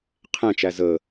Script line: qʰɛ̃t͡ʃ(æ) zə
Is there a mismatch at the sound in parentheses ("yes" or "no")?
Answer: no